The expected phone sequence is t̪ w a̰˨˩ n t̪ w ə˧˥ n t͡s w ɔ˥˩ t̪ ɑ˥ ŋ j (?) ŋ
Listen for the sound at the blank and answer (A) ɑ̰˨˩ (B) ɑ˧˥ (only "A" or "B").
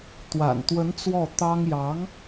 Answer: B